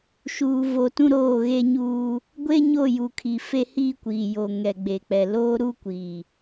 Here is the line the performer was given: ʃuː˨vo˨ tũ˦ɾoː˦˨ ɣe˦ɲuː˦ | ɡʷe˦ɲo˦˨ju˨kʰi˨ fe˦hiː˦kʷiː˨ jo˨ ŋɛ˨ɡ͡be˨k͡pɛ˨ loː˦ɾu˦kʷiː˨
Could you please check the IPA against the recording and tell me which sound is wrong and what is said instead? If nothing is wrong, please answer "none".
none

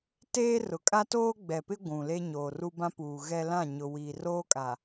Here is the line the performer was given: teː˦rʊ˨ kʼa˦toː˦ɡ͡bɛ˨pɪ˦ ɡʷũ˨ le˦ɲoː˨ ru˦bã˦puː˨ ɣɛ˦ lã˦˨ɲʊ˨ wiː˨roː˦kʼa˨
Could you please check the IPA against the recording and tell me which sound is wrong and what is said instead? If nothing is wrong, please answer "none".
none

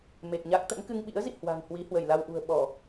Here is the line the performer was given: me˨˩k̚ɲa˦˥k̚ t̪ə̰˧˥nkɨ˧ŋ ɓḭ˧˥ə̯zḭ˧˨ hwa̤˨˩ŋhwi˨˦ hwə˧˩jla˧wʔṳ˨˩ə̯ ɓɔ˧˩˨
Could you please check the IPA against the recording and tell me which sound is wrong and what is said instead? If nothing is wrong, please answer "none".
none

